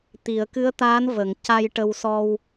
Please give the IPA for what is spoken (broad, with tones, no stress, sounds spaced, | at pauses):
t̪ i˨˩˨ ə̯ k ɨ˧˥ ə̯ t̪ aː˧˥ n v ə˨˩˨ ŋ c a˧ j ʈ ə˧ w s ɔ˧ w